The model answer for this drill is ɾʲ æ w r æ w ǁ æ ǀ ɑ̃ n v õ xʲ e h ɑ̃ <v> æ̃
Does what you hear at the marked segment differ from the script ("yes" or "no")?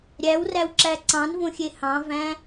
no